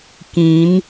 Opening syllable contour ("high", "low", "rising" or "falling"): rising